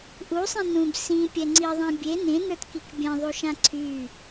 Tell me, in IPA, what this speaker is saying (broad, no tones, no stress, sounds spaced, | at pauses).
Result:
ʔ u sˤ ĩ n ũ b s ĩ pʲ ɛ ŋ͡ǀ i ðˤ ĩ bʲ e n ẽ n ə˞ t k i k bʲ ɛ̃ ðˤ u ʃ ã ǀʰ y